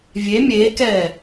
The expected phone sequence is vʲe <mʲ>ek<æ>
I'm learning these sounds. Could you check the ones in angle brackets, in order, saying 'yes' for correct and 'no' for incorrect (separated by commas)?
yes, no